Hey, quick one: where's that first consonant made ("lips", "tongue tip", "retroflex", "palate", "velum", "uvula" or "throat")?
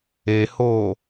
throat